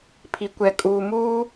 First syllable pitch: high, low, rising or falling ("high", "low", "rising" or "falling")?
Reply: low